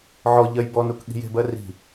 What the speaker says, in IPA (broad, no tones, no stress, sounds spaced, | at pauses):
ʕ ɔ ʎ ɜ j b ɔ n u k ɠ i̤ j e̤ b ɜ r i̤